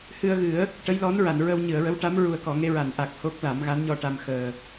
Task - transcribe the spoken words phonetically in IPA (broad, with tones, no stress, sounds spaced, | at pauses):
h ɨ˧ ə̯ ɣ ɨ˨˩˦ ə̯ | ʈ ə˧˥ j l ɔ˧˥ n ɹ a˨˩˨ n ɹ ə˧ w ɲ ɨ˨˩˨ ə̯ ɹ ə˧˥ w ʈ a˧˥ m ɹ u˨˩ ə̯ k ɔ˨˩˨ ŋ e˧ ɹ a˨˩˨ n ʔ a˨˩ k̚ h o˦˥ k̚ l a˨˩˦ m ɣ a˧˥ n ɲ ɔ˧ ʈ a˧ m x əː˨˩